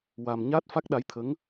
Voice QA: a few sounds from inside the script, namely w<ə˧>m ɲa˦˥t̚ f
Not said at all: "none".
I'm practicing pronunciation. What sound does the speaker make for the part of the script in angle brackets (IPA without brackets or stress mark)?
a˧